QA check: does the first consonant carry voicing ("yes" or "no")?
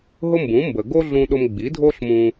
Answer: yes